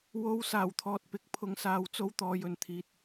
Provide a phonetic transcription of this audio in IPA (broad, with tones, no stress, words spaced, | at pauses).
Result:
wo˨˧w saː˨˩wt̪ʰɔː˨t̚pɪ˨˥k̚ pʰʊ˨ŋsaː˨wt͡so˧w t̪ɔː˨jɵ˨nt̪ʰiː˨t̚